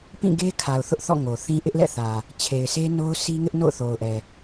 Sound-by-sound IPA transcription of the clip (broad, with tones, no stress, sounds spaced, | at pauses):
p ĩ˦˨ ɡ e˦ kʰ a˨ ʊ̯ θ ʊ˦ ʔ θ ɔ̰˦˨ ŋ o˨ θ ĩ˦ ʔ ɪ˦ ʔ l ɛ̰˦˨ θ ä˨ | t͡ɕʰ e˨ ɪ̯ s e˦ n o˦ ʊ̯ sʰ i˦ ŋ ɪ˦ ʔ n o̰˦˨ ʊ̯ θ o˨ ʊ̯ ʔ ɛ˨